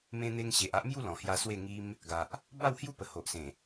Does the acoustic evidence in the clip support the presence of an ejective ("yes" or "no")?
no